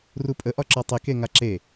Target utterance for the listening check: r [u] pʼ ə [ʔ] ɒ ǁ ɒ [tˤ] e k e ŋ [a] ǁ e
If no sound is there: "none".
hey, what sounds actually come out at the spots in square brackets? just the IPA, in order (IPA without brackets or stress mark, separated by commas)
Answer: u, ʔ, tˤ, a